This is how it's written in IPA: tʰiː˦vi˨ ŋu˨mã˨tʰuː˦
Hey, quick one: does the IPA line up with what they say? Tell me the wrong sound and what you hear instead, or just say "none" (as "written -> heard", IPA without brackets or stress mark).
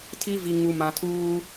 iː˦ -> i˦